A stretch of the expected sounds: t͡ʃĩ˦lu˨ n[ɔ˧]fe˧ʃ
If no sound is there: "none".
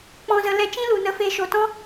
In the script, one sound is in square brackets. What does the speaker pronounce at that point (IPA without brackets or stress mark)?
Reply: ə˧